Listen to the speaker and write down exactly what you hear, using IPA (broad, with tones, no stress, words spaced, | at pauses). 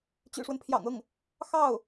t͡ɕy̰˨˩ʂwə˦npʰjɑ̰˨˩ŋ ɤ˥˩ŋ | xɑ˥˩ʊ̯